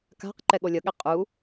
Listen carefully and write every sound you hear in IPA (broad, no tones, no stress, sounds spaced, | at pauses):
k a̤ q ǃ ɛ ɠ o lʲ ʌ ɠ ɛ qʼ u